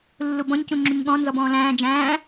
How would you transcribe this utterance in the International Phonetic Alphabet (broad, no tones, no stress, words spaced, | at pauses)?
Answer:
lːubɔ̃ɲ cũŋ͡ǁuɲɠɔ̃ nzɔbɔ̃ːlæ̃ː d͡ʒæ̃ː